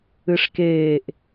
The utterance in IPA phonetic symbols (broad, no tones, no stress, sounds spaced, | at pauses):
ɨ ʂ k eː ʔ